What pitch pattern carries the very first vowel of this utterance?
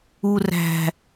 low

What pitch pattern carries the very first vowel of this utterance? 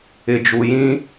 low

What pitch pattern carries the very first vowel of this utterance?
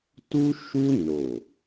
high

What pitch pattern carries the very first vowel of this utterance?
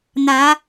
rising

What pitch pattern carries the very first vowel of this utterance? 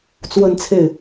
falling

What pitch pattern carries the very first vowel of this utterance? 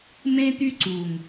high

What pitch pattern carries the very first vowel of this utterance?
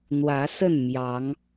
rising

